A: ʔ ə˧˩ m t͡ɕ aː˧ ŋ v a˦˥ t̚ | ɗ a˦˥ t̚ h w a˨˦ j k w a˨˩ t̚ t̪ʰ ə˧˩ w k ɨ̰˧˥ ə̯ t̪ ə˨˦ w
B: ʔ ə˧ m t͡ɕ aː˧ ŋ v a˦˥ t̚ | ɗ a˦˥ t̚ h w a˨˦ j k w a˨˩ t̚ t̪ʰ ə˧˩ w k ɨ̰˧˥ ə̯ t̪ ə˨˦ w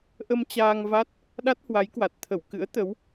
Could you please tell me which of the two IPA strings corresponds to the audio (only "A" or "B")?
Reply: B